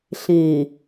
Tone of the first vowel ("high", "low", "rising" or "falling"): low